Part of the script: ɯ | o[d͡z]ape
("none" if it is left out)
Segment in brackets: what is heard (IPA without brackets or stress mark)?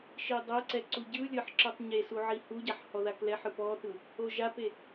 ʒ